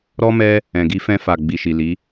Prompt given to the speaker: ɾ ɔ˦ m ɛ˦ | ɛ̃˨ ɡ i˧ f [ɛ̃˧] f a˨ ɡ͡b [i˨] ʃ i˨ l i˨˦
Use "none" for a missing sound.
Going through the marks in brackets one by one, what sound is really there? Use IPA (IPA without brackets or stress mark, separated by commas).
ɛ̃˧, i˨